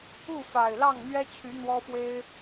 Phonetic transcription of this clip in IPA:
u˥˨ f a˨˩ ɪ̯ l ɑ˥˨ ŋ n̪ ɥ ɛ˦ t͡ɕʰ y˨˦ n̪ w ɔ˦ f w e˦ ɪ̯

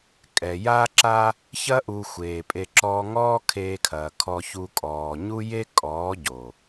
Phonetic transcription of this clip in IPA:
kʼ ɛ˨ j aː˦ ǁ a˦ | ç ɐ˦ ʔ u˧ xʷ eː˨ pʼ e˧ ǁ ɔː˧ ŋ ɔː˦ kʰ eː˧ kʰ ɐː˨ kʰ ɔ˧ ç u˧ kʼ ɔː˨ ɲ u˦ j e˦ kʼ ɔː˨˦ ɟ o˨

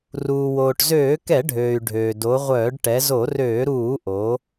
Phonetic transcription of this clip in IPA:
r uː˩ w oː˩ ʈ z øː˧˩˧ k ɛ˧˩˧ ɖʱ øː˩ y̯ ɖʱ øː˩ d o˩˧ ʁʷ œː˧˩˧ ɖ ʈ ɛ˩˧ z o˧˩˧ r øː˧˩˧ ɾ uː˧˩˧ ʔ o˩˧

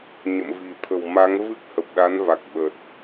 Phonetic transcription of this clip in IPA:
ɲ ə̰˧˨ m v i̤˨˩ t̪ʰ ə̤˨˩ w m a˨˦ ŋ v ɨ˦˥ k̚ h ə˨˩ p̚ ɗ a˨˦ n v a˨˩ k̚ ɓ ə˨˩ t̚

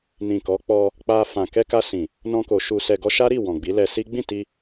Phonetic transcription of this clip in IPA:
n ĩ˨ k ɔ˨˦ k͡p ɔ˧ | k͡p a˧ f ã˨ k ɛ˧ k a˧ s ĩ˨ | n ɔ̃˧ k o˨ ʃ u˨ s ɛ˨ ɡ ɔ˧ ʃ a˦ ɾ i˦˨ w ɔ̃˨ ɡ͡b i˨˦ l ɛ˧ s i˦ ɡ͡b ĩ˦˨ t i˧

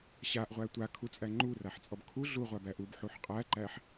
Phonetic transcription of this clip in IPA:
ɕ a ʔ ʁʷ æ tʷ a kʰ u t͡sʼ æ ŋ͡ǃ u r a ħ t͡sʼ ɔ b kʰ u ɮ u ʁʷ a b æ ʔ u b ħ u ħ qʼ æ ǃ æ ħ

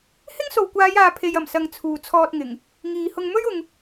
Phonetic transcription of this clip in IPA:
h ɪ˥ ŋ s o˨ w kʷ aː˨˧ j aː˨ pʰ e˨ j ɐ˨˩ m s ɐ˨ ŋ t͡sʰ uː˨ t͡sʰ ɔː˧ t̚ ŋ ɪ˨˩ ŋ | ŋ iː˨ h ʊ˧ ŋ m ɵ˥ ɥ ʊ˨ ŋ

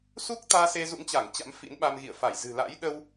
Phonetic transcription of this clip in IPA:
s u˦˥ k̚ t̪ aː˧ s e˧ z ṵ˧˥ ŋ t͡ɕ a˧˩ ŋ t͡ɕ a̰˧˥ m f ḭ˧˥ n ɓ a˧ m ɣ ḭ˧˨ ə̯ f a˧˩ j z ɨ̤˨˩ l a̰˧˥ j ɗ ə˧ w

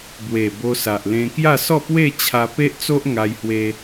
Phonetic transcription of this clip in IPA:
b w e˨˩ b o˧ s a˨ ʔ l ẽ˧ k j a˥˧ s ɔ˥˧ p w e˥˧ t͡ɕʰ a˧ p e˦ ʔ t͡s o˦ ʔ ŋ a˧ j h w e˧

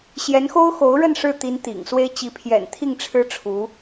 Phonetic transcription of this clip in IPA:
ɕ j ɛ˧˥ n x o˥ ʊ̯ x o˧˥ ʊ̯ ɻ ə˥˧ n ʂ ɻ̩˥˩ t̪ i˧˥ n t̪ ḭ˨˩ ŋ s w e˥ ɪ̯ t͡ɕ i˧˥ pʰ j ɛ̰˨˩ n t̪ʰ i˥˩ ŋ ʈ͡ʂʰ ɻ̩˥ ʈ͡ʂʰ u˧˥

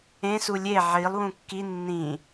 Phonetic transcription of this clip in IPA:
ẽ s u lʲ e ʕ i lˠ w ũ kː i nː ĩ

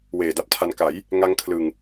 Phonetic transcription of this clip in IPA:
w eː˨˩ d a˦˥ p̚ tʰ a˧ n k a˩˦ j | ŋ a˦˥ ŋ kʰ l ɯ˨˩ ŋ

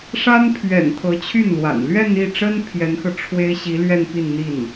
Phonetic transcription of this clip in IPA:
ʂ a˥ n pʰ ɥ ɛ̰˨˩ n t̪ʰ ɤ˧˥ t͡ɕʰ y˥˩ n l w a̰˨˩ n l ɥ ɛ˥˧ n i˥˩ ʈ͡ʂ ə˥ n pʰ j ɛ˧˥ n x ɤ˧ ʈ͡ʂʰ w e˥ ɪ̯ ɕ i˧˥ l ɥ ɛ˥˧ n p i˥˧ n n̪ i˥˩ n

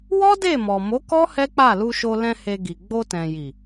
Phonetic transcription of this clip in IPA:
w ɔ˦ d e˦˨ m ɔ˨ m o˨˦ k ɔ˦ h ɛ˦ k͡p a˦˨ l u˧ ʃ o˧ l ɛ̃˧ h e˧ ɡ i˨ ɡ͡b o˧ t ɛ̃˨ j i˨

